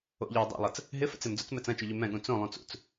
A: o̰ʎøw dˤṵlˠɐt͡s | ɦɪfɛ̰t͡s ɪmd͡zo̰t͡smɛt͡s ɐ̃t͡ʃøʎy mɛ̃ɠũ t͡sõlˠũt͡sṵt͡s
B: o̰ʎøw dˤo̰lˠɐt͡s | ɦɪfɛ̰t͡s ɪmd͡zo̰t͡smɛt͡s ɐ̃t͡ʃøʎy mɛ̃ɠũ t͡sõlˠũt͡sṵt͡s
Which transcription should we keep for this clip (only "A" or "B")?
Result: B